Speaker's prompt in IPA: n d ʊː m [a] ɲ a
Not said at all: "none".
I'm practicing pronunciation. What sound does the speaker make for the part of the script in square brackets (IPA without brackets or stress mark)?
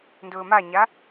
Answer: a